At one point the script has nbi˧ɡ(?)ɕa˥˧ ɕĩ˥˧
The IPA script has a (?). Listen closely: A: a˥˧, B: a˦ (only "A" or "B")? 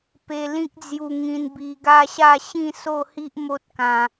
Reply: B